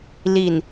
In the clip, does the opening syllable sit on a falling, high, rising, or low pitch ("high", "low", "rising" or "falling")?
low